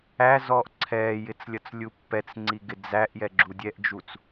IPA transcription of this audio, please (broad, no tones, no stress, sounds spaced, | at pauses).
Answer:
æ z ɔː ʔ ǀʰ ɛː j ɪ t͡s lʲ ʌ t͡s lʲ u pː ɛ t͡s ŋ͡ǀ i ɡ ɪ d͡z æ ʔ j ɛ ɡ͡ǁ u dʲ ɛ ʔ d͡ʒ u t͡s